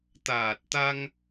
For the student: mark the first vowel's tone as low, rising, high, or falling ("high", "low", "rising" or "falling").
low